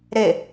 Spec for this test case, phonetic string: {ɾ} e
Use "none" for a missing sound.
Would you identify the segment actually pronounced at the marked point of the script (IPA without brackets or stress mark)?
ɾ